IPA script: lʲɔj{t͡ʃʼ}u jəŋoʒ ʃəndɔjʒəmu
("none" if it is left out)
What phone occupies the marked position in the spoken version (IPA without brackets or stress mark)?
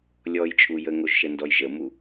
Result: t͡ʃʼ